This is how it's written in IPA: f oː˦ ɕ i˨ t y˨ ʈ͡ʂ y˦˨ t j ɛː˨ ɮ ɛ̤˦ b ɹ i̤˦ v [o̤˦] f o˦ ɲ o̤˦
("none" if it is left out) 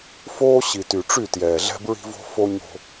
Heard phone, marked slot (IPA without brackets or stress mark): o̤˦